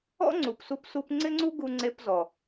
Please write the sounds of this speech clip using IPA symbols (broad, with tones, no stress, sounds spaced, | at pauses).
ɔ̰˥ ŋ͡ǀ u˩ p s u˧ p s u˧ p ŋ͡ǀ ɪ˥ ŋ͡ǀ u˥ ɡ u˧ ŋ͡ǀ e˧ p z ɔ˩